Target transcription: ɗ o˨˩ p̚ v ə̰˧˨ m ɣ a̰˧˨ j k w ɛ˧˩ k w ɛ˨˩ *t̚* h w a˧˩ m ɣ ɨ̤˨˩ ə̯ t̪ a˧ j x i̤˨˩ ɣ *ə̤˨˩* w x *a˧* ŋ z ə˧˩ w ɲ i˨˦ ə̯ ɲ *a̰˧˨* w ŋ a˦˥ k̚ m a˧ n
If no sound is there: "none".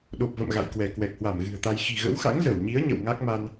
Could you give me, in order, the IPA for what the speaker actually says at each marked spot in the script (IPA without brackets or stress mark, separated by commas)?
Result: k̚, ə̰˧˥, a̰˧˥, ə̰˧˨